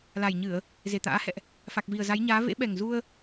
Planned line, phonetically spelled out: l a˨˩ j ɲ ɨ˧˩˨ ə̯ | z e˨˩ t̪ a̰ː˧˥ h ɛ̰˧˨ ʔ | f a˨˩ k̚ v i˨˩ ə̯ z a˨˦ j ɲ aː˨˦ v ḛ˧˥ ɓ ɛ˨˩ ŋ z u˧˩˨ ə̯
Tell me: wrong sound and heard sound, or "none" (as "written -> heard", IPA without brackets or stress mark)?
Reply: u˧˩˨ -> u˧